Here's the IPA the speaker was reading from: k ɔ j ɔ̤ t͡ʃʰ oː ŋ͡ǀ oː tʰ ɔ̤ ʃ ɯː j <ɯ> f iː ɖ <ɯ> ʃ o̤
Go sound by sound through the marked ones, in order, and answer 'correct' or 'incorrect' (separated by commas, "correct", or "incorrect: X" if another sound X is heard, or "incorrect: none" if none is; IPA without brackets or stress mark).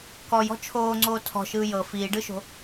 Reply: incorrect: ɤ, correct